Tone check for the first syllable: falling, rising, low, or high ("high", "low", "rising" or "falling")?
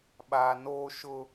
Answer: low